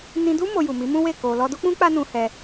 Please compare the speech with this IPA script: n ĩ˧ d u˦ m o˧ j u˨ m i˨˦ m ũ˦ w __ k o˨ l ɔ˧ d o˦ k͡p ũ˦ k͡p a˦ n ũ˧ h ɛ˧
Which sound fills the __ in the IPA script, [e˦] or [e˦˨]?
e˦˨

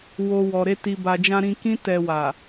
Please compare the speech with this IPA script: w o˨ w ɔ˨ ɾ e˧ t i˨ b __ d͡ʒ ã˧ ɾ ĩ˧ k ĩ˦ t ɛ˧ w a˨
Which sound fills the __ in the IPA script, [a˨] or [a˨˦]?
a˨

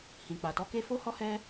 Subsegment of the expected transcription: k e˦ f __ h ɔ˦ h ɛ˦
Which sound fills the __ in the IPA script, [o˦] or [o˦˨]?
o˦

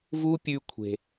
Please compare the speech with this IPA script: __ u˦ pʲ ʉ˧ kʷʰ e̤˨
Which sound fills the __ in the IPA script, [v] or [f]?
v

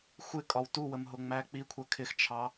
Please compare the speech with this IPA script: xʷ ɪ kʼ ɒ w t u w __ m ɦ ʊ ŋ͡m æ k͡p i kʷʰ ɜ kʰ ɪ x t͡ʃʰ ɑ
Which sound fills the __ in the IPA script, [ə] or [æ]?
ə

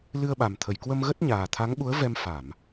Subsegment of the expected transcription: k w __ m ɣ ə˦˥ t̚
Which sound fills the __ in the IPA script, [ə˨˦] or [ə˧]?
ə˧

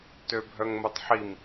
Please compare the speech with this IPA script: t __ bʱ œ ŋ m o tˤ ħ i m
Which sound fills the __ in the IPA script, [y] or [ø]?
ø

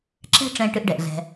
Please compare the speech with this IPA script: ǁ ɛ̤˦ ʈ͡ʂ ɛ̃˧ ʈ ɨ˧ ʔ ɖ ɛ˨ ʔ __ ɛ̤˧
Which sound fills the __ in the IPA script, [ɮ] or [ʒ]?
ɮ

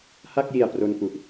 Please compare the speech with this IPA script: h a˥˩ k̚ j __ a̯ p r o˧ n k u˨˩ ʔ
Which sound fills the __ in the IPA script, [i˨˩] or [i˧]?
i˨˩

